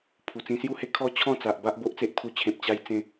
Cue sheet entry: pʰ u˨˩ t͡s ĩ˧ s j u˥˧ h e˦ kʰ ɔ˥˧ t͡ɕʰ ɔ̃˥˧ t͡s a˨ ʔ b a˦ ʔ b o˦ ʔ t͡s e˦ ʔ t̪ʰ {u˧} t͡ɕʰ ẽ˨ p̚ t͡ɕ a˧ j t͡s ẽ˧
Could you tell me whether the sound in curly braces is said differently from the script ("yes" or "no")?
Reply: no